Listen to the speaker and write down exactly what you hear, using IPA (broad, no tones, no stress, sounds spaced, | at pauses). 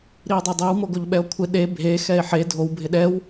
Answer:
ɾ i e̯ dˤ ɛ dˤ e w m o ɡ o ʎ ɓ ɛ o̯ kʷʰ ɪ ɗ e bʱ e x ɛ e̯ ħ e dʱ o w bʱ ɪ ɗ ɛ w